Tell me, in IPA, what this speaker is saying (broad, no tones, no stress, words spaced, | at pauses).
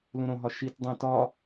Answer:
lũɾõɦɒ ʃit dˤẽ tɒ